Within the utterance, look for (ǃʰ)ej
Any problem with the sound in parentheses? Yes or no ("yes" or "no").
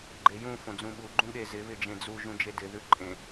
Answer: yes